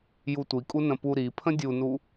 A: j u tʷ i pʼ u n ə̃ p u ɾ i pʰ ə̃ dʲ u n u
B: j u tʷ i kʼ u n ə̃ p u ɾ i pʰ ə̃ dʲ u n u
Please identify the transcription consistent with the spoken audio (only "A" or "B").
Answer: B